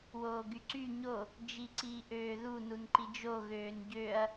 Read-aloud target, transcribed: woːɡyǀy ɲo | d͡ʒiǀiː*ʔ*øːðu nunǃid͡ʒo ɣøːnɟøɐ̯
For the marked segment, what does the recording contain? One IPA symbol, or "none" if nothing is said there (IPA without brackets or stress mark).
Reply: ʔ